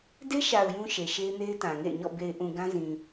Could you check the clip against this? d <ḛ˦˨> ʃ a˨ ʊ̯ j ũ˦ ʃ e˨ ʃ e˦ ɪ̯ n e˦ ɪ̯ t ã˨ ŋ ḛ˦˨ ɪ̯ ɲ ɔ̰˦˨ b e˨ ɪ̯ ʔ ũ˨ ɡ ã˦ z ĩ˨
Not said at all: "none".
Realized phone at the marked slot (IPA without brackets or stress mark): e˦